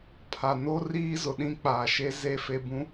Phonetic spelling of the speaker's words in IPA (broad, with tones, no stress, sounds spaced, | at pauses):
pʰ a˨ n o˦ r iː˦ z ʊ˨ ɗ ĩ˦ k͡p aː˨ ʃ e˦ z e˦˨ f e˦ b ũ˦